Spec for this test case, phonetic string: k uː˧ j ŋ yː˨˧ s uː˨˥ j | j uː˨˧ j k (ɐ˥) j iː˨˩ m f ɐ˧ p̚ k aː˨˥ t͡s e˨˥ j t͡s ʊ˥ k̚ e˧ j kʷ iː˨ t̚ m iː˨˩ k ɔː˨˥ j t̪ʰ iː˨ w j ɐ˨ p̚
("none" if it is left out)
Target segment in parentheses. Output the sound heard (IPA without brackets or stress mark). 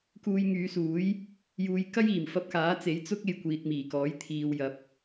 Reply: ɐ˥